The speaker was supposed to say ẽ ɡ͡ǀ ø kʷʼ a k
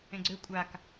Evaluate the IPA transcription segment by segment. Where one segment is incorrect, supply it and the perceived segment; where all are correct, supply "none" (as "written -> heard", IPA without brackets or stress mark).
none